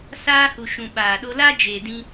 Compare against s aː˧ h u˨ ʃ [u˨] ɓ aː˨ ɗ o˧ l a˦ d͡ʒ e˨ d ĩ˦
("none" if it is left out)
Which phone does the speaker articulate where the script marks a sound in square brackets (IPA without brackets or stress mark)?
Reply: ũ˨